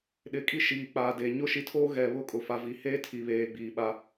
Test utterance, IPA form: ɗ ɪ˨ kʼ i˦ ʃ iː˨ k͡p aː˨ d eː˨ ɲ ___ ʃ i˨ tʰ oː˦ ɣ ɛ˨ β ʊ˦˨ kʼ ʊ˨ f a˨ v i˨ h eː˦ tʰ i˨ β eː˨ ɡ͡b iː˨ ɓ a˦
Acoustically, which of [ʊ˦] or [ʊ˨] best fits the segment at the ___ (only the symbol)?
ʊ˦